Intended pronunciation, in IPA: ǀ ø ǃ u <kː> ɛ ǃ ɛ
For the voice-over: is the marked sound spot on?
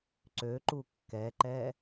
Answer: yes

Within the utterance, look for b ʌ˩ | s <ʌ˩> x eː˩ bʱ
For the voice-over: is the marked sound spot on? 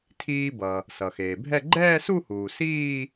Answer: yes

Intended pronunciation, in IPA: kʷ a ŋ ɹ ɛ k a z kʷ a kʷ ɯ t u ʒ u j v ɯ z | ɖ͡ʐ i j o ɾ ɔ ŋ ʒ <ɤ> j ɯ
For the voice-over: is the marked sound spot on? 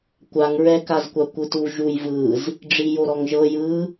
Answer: yes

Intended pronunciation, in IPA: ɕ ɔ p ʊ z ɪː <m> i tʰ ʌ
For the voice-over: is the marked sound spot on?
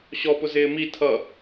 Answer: yes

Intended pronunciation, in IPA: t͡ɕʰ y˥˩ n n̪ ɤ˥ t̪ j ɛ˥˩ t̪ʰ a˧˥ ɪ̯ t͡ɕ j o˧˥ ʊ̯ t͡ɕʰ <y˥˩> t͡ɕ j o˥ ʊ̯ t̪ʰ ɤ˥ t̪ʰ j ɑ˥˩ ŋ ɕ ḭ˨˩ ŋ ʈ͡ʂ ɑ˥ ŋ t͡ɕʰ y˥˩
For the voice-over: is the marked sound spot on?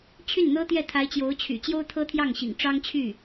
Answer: no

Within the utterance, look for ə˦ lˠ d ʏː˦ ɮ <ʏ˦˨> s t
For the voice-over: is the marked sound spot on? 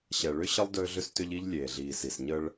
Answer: no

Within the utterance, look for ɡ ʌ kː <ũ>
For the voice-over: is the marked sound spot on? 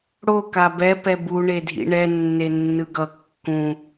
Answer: yes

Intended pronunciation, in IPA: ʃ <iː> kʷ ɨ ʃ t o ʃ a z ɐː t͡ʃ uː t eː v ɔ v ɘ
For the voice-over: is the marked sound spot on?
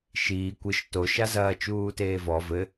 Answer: yes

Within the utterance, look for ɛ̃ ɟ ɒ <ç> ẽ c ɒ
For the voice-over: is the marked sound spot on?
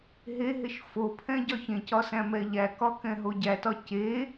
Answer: yes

